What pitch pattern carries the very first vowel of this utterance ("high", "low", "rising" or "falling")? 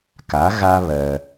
rising